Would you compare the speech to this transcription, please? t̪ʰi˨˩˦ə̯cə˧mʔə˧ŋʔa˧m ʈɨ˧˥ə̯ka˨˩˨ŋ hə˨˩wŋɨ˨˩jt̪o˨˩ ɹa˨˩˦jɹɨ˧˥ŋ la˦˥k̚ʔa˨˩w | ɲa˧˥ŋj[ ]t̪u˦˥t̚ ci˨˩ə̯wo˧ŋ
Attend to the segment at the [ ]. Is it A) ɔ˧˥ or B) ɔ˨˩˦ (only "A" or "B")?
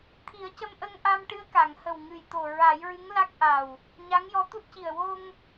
A